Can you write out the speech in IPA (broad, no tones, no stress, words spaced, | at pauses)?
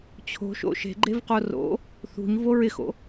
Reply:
t͡ɕʰo̤ʃo̰ ʃe̤ɡ͡ǃevqo ro̰ | θṳɲvo ɹɪxo̰